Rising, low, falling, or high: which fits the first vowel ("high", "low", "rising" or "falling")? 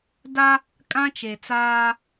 high